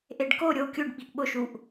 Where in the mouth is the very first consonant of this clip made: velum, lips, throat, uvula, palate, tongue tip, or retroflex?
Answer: throat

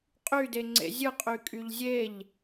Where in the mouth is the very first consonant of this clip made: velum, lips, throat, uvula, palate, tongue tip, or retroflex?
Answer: uvula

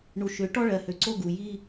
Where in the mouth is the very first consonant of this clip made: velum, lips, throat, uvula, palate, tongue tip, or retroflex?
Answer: retroflex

